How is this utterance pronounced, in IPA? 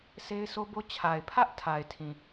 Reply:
s e˦ ɪ̯ sʰ o˦ b o˦ t͡ɕʰ a˨ ɪ̯ pʰ ä˦ ʔ tʰ a˨ ɪ̯ tʰ ĩ˨

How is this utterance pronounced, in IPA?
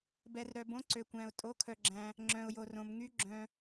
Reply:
b ɛ˩ r ɾ œ˩ b õ˩˧ ǀ ø˩ kʷ æ̃˩ ʊ̯ tʼ o˩˧ kʰ œ˩ ɡ͡ǁ æ̃˩ | ŋ͡ǁ œ̃˩ ʊ̯ j o˩ r õ˩ m ŋ y˩˧ ɡ͡ǁ œ̃˩

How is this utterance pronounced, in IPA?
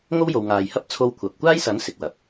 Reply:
ŋ o˥ w j o˨ w ŋ aː˨ j h ɐ˥ p̚ t͡sʰ o˧ w kʷʰ ɐ˨ p̚ kʷ aː˥ j s ɐ˨˥ n s ɪ˨ k̚ w ɐ˨ p̚

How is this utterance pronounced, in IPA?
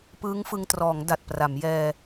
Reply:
p ɯː˦˥ ŋ f ɯ˧ ŋ t r ɔː˩˦ ŋ d a˨˩ t̚ p r a˩˦ m j ɛː˧

